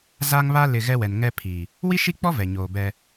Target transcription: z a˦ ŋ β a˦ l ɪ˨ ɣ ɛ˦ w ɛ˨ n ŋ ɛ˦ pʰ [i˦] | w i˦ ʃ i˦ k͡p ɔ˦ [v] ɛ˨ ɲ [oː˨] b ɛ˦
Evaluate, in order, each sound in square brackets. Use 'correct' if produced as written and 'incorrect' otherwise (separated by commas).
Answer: incorrect, correct, correct